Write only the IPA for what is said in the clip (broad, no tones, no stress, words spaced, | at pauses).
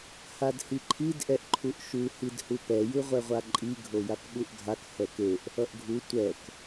hadhiǃʰid ʔɛʔǃʰuʔʃu hidhupɛ jɯʁʷɛʁʷaǃʼi ɡʱojakɓuʔɡʱak hɛkeʔ | ʌʔɡʱu tʷɛk